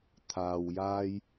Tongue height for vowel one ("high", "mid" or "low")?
low